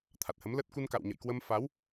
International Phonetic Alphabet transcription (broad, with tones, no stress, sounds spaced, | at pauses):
t̪ʰ a˨˩ t̚ h ə˨˦ m l ə˦˥ t̚ k u˧ n k a̰˧˨ w ɲ ə̰˧˨ j k w ə˧ m f a˨˦ w